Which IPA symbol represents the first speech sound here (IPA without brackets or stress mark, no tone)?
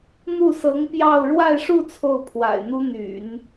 n̪